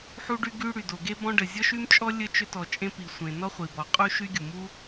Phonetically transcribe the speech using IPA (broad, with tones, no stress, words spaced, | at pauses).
ħu˥ɖy˥ɡy˥ ɽy˩do˩ɡe˥ bɔ̃˥ɖə˩ zʲɔ˥ʃy˥mt͡ʃʼɔ˥ lʲə˥ t͡ʃʏ˥tɔ˩t͡ʃʼẽ˥ pi˩sʷẽ˩ nɔ˥χʷi˩bɔ˩qʼu˥ ʃy˥ɡʲu˩mu˥